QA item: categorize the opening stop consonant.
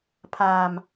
aspirated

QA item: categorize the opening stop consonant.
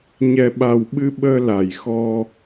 implosive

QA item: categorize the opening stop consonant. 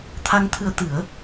aspirated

